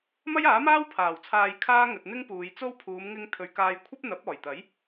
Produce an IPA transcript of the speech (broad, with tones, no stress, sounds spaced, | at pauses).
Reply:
m ɐ˥ j aː˨˥ m aː˥ w pʰ aː˨˩ w t͡sʰ aː˧ j kʰ aː˥ ŋ ɵ˨ t̚ n̪ ɪ˥ ŋ p uː˨˧ j t͡s o˥ w pʰ uː˨˧ m ŋ ɪ˧ ŋ t̪ʰ ɵ˨ ɥ k aː˧ j kʷʰ ɐ˥ p̚ n̪ ɐ˨˥ p̚ ɔː˨˩ j t̪ ɐ˨˥ j